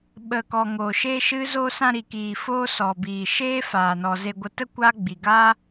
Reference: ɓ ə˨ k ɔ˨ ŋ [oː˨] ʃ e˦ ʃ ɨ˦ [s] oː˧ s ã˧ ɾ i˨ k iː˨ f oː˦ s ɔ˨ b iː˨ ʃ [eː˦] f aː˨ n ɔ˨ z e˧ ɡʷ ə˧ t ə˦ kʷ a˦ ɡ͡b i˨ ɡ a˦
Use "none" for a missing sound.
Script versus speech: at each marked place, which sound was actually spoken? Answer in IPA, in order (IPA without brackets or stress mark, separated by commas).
oː˨, z, eː˦